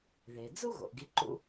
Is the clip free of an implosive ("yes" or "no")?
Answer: yes